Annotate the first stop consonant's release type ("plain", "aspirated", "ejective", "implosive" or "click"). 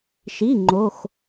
click